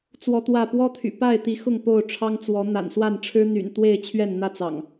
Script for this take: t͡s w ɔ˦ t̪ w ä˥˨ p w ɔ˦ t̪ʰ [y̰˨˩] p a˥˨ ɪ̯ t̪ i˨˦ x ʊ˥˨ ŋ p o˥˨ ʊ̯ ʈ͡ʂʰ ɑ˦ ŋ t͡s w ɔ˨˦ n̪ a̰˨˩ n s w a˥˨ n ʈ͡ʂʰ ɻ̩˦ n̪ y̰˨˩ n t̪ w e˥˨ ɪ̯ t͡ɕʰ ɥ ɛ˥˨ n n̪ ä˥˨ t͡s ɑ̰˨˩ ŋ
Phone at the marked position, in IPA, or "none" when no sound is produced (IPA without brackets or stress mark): y̰˨˩